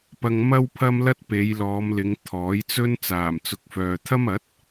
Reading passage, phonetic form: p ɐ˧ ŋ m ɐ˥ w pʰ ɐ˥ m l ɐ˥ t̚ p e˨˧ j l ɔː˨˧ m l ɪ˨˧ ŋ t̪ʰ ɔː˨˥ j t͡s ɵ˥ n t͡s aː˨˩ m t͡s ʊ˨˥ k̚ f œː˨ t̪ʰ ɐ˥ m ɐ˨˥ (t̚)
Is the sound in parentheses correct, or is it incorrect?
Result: correct